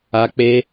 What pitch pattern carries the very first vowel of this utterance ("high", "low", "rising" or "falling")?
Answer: high